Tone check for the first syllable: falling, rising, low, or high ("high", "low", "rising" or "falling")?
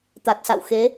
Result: low